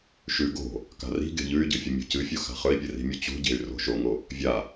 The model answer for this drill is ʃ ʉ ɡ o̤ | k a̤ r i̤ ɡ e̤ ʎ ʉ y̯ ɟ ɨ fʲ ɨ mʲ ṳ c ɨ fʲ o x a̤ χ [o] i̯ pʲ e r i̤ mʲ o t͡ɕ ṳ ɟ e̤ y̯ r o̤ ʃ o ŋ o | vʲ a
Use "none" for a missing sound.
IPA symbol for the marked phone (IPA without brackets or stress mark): ɵ